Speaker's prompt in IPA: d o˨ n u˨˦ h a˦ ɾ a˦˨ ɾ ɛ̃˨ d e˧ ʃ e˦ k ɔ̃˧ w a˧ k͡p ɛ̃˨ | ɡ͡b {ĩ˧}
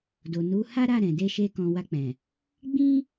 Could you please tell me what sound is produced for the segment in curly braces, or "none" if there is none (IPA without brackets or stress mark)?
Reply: ĩ˦